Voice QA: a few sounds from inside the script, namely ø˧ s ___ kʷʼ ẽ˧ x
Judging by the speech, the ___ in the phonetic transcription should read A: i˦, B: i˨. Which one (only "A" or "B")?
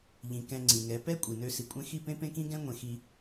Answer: B